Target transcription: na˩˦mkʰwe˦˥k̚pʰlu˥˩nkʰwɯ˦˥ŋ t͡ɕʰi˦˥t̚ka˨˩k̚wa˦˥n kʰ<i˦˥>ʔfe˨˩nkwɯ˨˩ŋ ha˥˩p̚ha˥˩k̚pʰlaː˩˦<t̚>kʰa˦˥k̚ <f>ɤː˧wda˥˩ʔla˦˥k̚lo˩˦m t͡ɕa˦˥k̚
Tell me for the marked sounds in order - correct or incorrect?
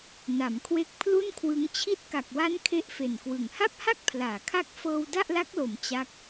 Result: incorrect: e˦˥, incorrect: none, correct

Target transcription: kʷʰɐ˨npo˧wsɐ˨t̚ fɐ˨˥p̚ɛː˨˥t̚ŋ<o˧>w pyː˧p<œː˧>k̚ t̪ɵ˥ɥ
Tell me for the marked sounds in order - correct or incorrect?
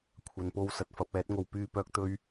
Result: correct, correct

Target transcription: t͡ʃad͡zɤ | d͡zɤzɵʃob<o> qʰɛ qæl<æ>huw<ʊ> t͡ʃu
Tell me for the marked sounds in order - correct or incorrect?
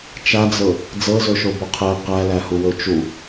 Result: correct, correct, incorrect: ɵ

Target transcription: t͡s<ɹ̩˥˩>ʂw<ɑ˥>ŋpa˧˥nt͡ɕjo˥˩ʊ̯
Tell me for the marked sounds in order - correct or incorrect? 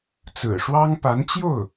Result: incorrect: ɹ̩˨˩, correct

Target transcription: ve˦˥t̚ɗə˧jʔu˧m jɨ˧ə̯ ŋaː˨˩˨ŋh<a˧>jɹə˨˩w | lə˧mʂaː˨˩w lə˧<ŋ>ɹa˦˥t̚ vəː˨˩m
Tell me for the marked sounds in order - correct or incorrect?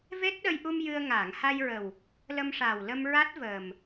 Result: correct, incorrect: m

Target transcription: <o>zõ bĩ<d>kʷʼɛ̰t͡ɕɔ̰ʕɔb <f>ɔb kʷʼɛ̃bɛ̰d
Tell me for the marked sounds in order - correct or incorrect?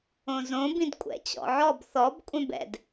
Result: incorrect: õ, correct, incorrect: θ

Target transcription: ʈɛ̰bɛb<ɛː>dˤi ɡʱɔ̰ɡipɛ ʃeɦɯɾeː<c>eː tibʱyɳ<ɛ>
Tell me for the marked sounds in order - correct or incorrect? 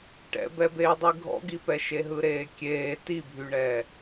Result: incorrect: eː, incorrect: kʲ, incorrect: ɛː

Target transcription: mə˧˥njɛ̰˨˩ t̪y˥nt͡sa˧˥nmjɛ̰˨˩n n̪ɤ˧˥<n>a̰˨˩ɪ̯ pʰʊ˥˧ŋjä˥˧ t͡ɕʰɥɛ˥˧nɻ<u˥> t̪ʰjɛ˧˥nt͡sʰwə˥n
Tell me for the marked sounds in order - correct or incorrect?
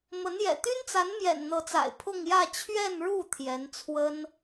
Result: incorrect: t͡s, incorrect: u˥˩

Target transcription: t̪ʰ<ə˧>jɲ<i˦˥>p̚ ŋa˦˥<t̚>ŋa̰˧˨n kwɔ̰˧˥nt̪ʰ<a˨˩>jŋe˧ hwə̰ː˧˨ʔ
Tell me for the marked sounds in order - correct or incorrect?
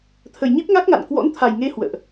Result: incorrect: ə˨˩, correct, incorrect: k̚, correct

